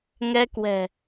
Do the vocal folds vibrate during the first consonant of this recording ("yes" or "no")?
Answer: yes